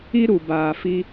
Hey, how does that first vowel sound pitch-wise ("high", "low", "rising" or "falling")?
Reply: high